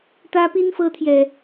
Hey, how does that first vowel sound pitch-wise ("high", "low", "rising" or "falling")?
high